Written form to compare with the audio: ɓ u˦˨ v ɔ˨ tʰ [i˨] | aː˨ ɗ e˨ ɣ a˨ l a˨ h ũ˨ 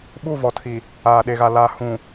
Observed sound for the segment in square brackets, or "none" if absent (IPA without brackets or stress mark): i˨